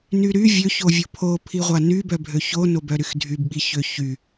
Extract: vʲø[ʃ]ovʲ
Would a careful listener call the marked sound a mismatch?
yes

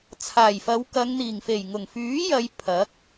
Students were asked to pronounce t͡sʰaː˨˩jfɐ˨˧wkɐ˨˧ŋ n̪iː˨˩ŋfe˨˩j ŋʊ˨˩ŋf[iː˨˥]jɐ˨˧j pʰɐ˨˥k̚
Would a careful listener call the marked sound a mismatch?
yes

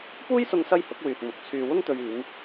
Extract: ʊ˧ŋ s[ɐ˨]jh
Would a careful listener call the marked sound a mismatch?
yes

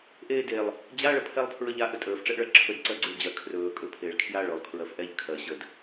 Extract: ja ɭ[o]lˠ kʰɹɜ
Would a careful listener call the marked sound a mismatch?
yes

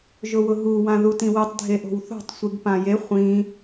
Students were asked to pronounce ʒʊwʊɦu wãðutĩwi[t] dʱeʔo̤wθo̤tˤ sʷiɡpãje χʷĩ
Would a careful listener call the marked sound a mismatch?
yes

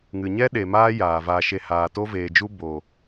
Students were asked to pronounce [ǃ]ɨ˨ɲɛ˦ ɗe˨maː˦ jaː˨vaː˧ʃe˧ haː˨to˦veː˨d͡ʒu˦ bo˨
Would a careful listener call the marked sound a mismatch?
yes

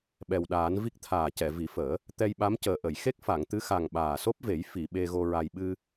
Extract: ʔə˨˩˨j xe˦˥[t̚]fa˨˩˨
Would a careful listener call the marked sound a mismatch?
yes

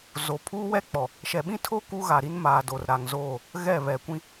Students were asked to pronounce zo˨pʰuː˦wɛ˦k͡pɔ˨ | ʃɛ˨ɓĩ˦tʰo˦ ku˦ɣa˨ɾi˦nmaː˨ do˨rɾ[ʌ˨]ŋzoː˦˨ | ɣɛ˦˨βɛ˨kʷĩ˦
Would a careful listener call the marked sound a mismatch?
yes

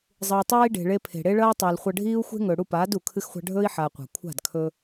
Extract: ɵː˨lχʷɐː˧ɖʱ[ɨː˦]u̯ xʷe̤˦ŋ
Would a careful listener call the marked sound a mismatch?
yes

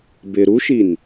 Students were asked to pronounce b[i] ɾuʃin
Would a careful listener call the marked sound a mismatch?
yes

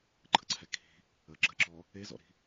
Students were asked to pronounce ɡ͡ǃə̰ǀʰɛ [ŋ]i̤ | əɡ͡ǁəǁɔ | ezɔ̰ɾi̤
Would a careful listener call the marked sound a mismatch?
yes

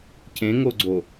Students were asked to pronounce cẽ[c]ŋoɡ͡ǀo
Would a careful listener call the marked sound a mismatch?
yes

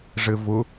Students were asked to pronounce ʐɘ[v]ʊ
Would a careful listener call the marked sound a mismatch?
no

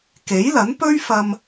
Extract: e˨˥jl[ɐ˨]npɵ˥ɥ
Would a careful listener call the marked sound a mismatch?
yes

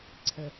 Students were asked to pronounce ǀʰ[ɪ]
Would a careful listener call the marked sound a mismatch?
yes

